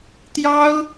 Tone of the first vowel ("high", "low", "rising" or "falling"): high